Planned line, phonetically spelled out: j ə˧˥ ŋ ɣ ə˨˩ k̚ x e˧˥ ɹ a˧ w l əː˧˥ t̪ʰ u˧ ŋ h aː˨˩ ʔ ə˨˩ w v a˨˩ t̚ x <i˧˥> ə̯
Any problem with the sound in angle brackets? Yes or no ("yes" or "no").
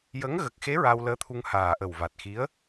no